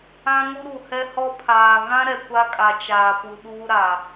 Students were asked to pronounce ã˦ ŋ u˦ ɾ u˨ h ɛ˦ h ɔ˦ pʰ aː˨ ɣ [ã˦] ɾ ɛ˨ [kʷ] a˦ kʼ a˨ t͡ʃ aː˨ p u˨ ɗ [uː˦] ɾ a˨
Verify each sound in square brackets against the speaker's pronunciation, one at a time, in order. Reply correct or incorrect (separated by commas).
correct, correct, correct